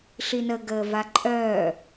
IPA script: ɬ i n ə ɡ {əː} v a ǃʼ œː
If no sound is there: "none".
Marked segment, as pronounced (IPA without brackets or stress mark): əː